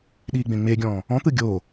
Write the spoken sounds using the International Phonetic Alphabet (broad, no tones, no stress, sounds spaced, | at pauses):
ɗ iː ɡ͡b ẽ ŋ͡m e ɡʲ ɔ̃ː | ɔ̃ t̪ ɯ ɡʲ o